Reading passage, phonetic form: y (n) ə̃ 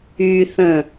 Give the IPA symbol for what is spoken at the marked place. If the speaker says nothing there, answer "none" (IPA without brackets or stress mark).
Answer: θ